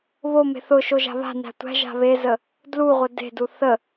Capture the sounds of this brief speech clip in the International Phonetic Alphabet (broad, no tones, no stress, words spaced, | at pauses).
βome̤ θʊ ʃoʒa̤βa̤næ̤ tʷæ̤ ʒa̤βezə | dluʁʷə de̤du θə